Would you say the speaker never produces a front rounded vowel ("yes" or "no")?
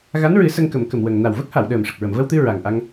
yes